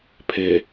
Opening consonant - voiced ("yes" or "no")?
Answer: no